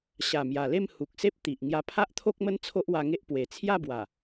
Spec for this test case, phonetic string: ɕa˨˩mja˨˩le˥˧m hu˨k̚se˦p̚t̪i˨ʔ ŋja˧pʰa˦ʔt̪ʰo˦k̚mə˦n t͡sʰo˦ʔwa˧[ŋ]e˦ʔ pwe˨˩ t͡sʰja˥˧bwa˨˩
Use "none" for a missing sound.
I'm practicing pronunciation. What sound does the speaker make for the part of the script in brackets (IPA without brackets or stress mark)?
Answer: ŋ